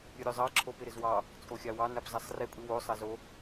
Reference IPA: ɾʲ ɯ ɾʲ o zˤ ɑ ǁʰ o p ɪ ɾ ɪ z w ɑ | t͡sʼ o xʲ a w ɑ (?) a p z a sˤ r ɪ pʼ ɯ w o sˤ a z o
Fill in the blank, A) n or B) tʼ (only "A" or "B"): A